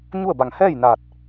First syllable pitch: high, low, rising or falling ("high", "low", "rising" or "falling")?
falling